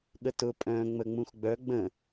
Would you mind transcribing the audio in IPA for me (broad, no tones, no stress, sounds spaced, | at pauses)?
ɠ ə t ʊ pʼ œ̃ ŋ͡m ə ŋ͡m ũ x ɡ͡b œ ɡ͡b ə̃